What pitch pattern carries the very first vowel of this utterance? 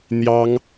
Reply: high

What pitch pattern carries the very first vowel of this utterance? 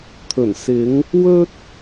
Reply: low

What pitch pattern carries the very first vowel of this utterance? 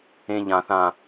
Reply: high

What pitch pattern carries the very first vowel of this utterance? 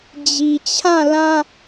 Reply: low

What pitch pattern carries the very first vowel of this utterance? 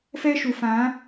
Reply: high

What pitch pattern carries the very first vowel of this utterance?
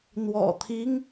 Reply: low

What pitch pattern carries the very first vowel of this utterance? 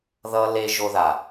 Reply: high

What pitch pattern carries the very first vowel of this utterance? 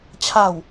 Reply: falling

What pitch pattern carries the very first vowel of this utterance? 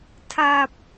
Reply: low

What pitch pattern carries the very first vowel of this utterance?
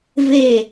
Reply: falling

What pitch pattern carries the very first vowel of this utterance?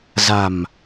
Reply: low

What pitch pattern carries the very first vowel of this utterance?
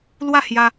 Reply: falling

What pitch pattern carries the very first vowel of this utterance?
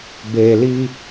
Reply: low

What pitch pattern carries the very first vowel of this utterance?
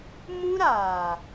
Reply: high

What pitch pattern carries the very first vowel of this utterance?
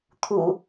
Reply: low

